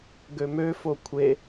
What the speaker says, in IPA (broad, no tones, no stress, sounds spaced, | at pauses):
ɡ ø m ø f o kʷʰ e